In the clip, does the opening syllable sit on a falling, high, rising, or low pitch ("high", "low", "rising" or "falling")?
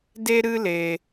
high